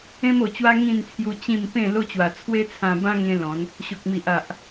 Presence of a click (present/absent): absent